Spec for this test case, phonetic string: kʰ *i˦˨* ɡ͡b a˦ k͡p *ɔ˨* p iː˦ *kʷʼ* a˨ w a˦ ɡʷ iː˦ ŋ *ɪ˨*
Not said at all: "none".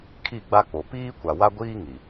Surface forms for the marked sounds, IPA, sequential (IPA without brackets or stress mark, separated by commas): i˦˨, o˨, kʷ, i˨